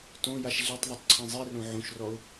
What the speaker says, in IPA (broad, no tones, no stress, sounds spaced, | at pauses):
t õ j a ʃ ɮ i tˤ ðˤ o tˤ ǀʰ ĩ zˤ i r õ ʕ õ ʃ r ɔ ʊ̯